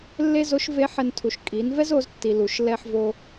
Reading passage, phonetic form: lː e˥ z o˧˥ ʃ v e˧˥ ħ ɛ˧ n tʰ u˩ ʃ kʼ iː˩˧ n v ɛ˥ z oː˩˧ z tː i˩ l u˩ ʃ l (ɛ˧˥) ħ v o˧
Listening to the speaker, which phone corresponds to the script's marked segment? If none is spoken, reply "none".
ɛ˧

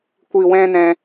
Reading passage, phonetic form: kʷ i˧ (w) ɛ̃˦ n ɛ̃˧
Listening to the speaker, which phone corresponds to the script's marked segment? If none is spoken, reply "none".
w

